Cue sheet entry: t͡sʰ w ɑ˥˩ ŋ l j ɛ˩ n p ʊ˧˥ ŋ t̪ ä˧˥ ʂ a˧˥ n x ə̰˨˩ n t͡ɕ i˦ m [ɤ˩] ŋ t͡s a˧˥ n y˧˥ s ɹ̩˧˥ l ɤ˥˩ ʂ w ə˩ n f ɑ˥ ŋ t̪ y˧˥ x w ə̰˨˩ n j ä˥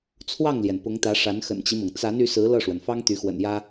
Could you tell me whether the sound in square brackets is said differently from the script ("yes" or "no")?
no